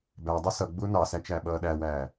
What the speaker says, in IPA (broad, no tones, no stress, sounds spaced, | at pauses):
b æ dˤ ʌ s ʌ ɡ͡b ʊː n ɑ s æ t͡ʃ æ ɓ ʌː ɗ æ w æː